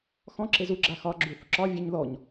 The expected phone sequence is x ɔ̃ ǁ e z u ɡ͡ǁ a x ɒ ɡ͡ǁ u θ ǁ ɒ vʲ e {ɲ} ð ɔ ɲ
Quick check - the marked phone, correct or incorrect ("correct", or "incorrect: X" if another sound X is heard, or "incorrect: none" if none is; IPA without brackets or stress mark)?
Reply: correct